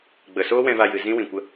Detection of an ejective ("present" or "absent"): absent